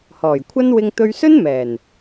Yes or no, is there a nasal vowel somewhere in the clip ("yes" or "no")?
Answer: no